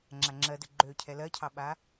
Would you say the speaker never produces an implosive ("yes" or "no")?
no